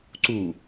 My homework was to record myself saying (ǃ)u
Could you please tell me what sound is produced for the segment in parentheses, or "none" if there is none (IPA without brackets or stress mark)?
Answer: ǀ